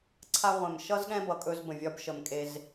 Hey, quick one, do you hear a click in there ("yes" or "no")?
yes